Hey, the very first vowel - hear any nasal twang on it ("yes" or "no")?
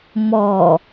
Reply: no